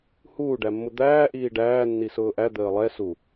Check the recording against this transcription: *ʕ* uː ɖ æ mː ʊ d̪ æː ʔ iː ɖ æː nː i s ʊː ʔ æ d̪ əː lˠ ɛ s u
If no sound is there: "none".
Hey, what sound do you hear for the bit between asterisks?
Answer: h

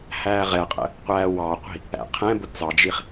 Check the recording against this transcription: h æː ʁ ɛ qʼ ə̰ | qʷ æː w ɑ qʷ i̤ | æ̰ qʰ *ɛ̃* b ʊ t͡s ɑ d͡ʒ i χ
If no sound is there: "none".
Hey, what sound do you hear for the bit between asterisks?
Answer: ɛ̃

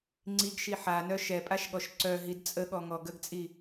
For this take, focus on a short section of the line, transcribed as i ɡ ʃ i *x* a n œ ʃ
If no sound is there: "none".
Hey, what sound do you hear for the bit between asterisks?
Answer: ħ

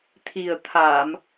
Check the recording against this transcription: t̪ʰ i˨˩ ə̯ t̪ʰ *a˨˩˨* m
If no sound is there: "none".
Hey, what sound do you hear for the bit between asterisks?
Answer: a˨˩˨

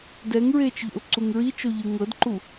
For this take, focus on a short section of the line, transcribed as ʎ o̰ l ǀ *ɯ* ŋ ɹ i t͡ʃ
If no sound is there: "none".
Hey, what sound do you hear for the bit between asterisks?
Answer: u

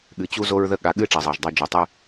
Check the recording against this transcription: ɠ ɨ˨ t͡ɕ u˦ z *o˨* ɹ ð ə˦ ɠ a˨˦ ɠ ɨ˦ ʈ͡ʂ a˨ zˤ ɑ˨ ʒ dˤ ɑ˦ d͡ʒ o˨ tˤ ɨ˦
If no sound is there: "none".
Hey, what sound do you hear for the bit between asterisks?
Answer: o˦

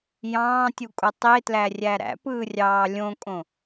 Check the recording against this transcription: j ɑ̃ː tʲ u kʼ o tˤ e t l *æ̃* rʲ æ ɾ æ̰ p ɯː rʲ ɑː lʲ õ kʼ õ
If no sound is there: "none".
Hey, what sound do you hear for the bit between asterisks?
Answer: æ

